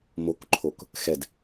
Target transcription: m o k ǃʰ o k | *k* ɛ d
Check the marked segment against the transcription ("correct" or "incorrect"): incorrect